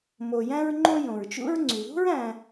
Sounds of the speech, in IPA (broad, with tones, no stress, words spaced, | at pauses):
mo˨jæ̃˦ɹŋ͡ǃõ˦ jõ˩ɹt͡ʃṵ˦ɹŋ͡ǀy˩ðṳ˥ɹ æ̃˨